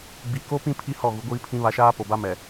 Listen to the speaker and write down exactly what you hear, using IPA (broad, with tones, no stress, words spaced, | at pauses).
ɡ͡bi˨ ko˦pĩ˦ pʰi˦ hɔ˦˨ɣu˨˦ ɡʷiː˦pʰĩ˦βa˦ ʃaː˦po˨ba˦ mɛ˨